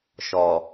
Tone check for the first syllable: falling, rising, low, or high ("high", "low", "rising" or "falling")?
low